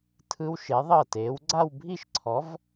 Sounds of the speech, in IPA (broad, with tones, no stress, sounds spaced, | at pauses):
tʰ ɯ˦˥ w ʃ e˨˥ ðˤ ɤ˥˩ t eː˨˥ w ɡ͡ǀ a˥˧ w bʱ i˥˧ ʃ ǀʰ ɔ˨˥ v